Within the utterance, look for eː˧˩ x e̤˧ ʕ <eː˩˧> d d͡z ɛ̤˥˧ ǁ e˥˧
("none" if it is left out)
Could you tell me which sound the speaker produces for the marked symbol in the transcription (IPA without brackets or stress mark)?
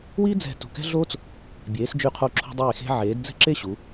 eː˩˧